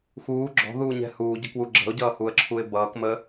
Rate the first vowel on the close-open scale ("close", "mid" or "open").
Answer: close